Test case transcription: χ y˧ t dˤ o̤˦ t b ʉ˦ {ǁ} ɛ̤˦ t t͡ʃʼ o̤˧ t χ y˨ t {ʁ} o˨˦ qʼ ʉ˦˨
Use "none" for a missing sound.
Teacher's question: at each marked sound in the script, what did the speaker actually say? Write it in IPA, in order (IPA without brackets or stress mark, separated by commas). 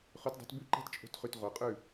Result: ǃ, ʁ